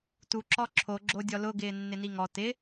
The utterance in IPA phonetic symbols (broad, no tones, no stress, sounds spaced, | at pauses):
t u ǁ ɔ ǁʰ o ɡ͡ǁ o dʲ ɔ l ʊ ɡ ɪː nː ɪ n i ŋ ɔ t ɪ